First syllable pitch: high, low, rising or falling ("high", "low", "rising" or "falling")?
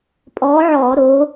rising